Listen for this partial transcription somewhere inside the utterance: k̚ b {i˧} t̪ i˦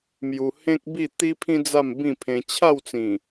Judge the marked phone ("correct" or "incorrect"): incorrect